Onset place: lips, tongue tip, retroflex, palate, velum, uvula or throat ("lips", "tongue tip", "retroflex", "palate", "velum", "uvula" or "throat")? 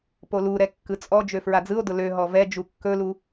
lips